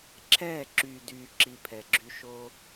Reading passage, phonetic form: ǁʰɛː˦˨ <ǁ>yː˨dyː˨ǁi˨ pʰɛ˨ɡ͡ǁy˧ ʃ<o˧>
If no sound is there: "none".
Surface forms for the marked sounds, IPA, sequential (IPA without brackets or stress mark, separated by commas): ǁ, o˧